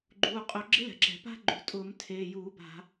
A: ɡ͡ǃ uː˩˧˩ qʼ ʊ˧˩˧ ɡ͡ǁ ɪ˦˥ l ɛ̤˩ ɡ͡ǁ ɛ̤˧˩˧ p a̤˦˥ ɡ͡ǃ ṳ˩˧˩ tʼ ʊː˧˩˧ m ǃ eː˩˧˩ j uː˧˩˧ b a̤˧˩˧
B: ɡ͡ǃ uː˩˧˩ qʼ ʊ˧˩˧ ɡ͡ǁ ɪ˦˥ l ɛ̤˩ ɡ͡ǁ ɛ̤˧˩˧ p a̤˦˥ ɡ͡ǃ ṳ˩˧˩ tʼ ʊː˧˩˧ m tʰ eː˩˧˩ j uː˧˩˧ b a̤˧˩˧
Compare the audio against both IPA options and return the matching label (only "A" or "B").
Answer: B